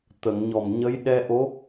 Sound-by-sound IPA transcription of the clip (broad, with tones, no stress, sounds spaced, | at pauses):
t̪ ə˨˩˨ ŋ ɲ ɔ˨˩ m ɲ ə˧˥ j ɗ ɛ˧ ʔ o˧˥